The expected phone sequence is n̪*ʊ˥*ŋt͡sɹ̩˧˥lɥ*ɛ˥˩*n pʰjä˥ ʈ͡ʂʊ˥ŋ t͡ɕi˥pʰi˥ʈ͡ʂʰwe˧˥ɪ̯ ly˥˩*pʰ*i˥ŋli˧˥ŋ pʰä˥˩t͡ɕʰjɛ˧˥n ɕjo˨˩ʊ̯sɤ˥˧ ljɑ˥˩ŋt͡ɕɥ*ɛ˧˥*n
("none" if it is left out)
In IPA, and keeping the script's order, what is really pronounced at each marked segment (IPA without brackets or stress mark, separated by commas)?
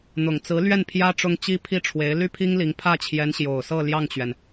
ʊ˨˩, ɛ˥˩, pʰ, ɛ˩